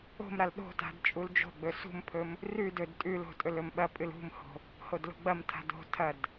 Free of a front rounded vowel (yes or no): yes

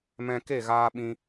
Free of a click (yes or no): yes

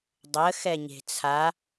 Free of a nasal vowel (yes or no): yes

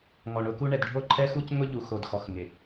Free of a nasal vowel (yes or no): yes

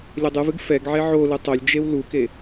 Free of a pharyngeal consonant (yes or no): no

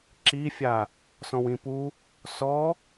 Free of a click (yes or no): no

